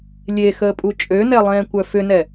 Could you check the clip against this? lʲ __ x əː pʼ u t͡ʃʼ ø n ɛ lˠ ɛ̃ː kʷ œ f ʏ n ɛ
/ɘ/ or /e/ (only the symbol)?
e